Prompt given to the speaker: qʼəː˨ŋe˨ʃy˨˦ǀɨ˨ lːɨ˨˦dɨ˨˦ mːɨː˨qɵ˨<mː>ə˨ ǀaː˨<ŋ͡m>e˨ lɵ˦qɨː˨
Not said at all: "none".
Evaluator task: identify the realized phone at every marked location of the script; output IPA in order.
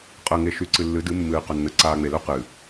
nː, ŋ͡m

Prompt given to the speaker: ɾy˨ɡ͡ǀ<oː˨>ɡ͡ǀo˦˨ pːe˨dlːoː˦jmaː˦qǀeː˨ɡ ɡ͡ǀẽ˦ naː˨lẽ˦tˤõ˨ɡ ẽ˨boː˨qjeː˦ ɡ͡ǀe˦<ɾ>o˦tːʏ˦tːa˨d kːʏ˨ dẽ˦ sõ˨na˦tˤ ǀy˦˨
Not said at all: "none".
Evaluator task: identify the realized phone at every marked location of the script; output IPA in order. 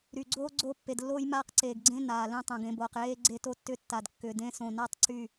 oː˦, t

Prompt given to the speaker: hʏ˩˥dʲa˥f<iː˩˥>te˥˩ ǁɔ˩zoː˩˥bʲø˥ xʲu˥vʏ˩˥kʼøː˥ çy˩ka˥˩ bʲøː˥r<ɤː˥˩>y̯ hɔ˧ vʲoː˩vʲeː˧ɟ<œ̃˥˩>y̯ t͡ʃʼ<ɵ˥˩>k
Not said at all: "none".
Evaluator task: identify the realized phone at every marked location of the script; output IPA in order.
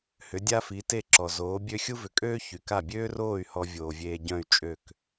i˩˥, oː˥˩, œ̃˥˩, ø˥˩

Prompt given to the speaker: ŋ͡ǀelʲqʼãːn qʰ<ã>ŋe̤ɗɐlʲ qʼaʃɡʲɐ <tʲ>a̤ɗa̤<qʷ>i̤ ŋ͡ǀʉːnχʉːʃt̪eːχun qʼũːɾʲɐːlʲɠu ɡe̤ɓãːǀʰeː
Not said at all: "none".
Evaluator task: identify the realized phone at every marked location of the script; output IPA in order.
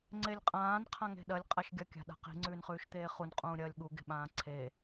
ã, kʲ, q

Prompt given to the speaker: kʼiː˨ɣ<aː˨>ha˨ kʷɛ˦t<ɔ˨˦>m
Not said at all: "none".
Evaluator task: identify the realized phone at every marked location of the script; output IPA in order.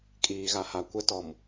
a˨, ɔ˨

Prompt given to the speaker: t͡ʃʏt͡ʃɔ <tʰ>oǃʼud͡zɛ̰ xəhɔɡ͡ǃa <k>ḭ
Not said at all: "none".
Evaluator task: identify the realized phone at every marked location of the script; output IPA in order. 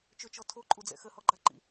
tʰ, ǃ

